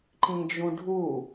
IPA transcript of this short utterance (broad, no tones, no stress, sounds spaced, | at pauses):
ǃ ĩ d͡ʒ ũ ɖʱ u